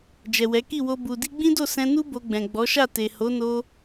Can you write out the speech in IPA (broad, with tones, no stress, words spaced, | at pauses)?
d͡ʒɛ˨wɛ˨˦ki˦˨wo˧ bu˨di˧ɡ͡bĩ˦do˦˨ sɛ̃˧nu˦ bo˧ɡ͡bɛ̃˨ ɡ͡bɔ˨˦ʃa˦˨ te˨ ho˨˦no˧